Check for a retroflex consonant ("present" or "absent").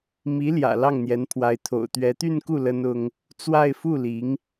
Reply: absent